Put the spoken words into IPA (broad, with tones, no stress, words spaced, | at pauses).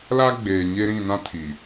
la˦ ɡ͡beː˨ɲe˦ ɾĩ˦˨nã˦tʰi˨